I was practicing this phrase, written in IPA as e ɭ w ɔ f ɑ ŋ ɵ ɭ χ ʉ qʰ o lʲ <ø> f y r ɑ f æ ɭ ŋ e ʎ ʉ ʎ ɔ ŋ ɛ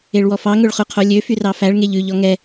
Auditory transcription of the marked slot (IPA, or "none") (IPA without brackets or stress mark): ø